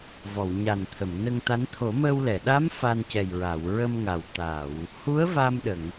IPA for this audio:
v ɔ˨˩˨ w ɲ a˨˩ n t̪ʰ ə˨˩˨ m n ə˧ ŋ t̪ a˧˥ n t̪ʰ o˨˩˦ m əː˧ w l ɛ˨˩˨ ɗ a˧˥ m f a˧ n c ɛ˨˩ j ɹ a˨˩˨ w ɹ ə˧ m ŋ a˨˩ w t̪ a˨˩˨ w | h u˧˥ ə̯ v a˧ m ɗ ə˨˩˨ ŋ

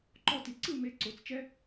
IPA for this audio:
ǃ ɔ˦ t i˨ ǀ ɯ˦˨ m e˨ ǀ o˨ t͡s t͡ʃ ɛ˦

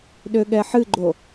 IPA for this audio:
ɗ ø ɠ ɛ ħ ɨ ɡ͡ǃ o

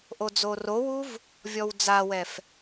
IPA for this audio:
ʔ o d͡z o r o w u v | vʲ ɔ w d͡z a w ɛ f

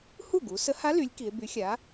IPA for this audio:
h u˥˩ ɡ u˩˧ s ə˧˥ h a˧˥ l y˩˧ lʲ k i˩˧ e̯ b y˩˥ xʲ a˩˥

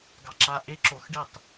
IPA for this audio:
ɡ ɑ ǁ a ʔ e ǁ o x ɖ e tˤ

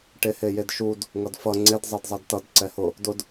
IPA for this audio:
ʈ e h e j e d ʃ u d | ŋ ʌ d f ʌ ŋ͡ǀ e d zˤ e d zˤ ɛ d t ʌ d ǀ ɛ h ʊ | d ʊ d

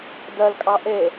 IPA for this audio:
d ɜ l kʼ ɑ ʔ e

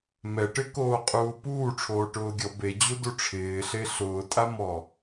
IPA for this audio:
m ɛ ʈ ɪ k oː qʼ uː p uː ʈ͡ʂʰ oː ʈ ʊː ɡʲ ɔ b e d͡ʑ u d u ʈ͡ʂʰ ɪː ɬ e ɬ ʊː tʼ a m ɔ

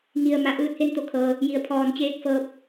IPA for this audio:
ŋ i˩ ə̯ m a˩ ʔ ɯː˧˥ t̚ h e˥˨ n t̪ o˧ kʰ ɤː˩ | j i˩˧ ə̯ pʰ ɔː˧˩ n t͡ɕ eː˧˥ k̚ f ɤː˧˥ p̚

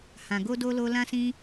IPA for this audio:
h ã˨ ɡ o˧ d o˧ l o˧ l ã˦ s ĩ˦

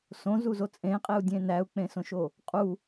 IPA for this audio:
s õ z u z o t͡sʼ ẽ qʼ e u̯ dʲ ẽ n æ u̯ k͡p ẽ s õ ʃ o | qʼ u

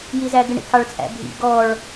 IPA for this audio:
j i z æ ɡ ɪ ɳ ḭ k ɑ ɭ t͡sʼ æ̰ bʱ ḭ ɡ ɔ ɭ

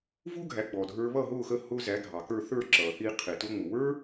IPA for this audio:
v u˥ ɡʱ æ˩˥ ɡ͡b ɔ˩ dʱ ə˞˧ β ʌ˥˩ ɦ ʊː˥˩ x ə˥˩ h ʊː˧ z æ˩˥ ɡʱ ɑ˩ k ə˞˥˩ θ ə˞˥˩ ǁ ʌː˩ θ i˧ qʰ ɪ˩ t ʊ˧ ŋ͡m ʊ˩ w ə˞˥

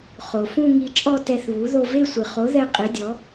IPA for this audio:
χ o˩ f ũ˥˧ ŋ i˧ t͡ʃʼ ɔ˥˧ t ɛ˧ θ β u˩˥ ð o˧ v e˥˧ sʷ ɨ˩ χ o˩˥ ð ɛ˧ qʼ i˩˥ dʲ ɔ˩˥

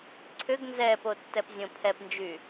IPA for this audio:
ǀʰ ʏ ɡ n z ɛː p o tː ɛ p zʲ õ pʰ ɛ p n d͡ʒ y

